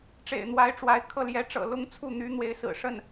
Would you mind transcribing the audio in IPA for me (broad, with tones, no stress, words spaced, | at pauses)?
ʈ͡ʂḛ˨˩ɪ̯n̪wa˧˥ɪ̯ʈ͡ʂwa˧˥ɪ̯kʰɤ˥˩ ljɛ˧˥ʈ͡ʂɤ̰˨˩ lʊ˥ŋt͡sʰu˥˩ n̪y˧˥ n̪we˧˥ɪ̯sɹ̩˨˩ ʂə˥˩n